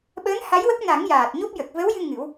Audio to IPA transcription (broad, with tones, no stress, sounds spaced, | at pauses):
ɓ əː˧˥ n h a˧˥ j w ə˦˥ k̚ n a˨˩˦ ŋ j aː˨˩ t̚ ɲ o˦˥ p̚ j ə˨˩ k̚ v ə˧˥ w j ɨ˧ ŋ ɨ˨˩˦ w